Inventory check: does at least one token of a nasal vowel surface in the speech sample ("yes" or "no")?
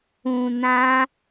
yes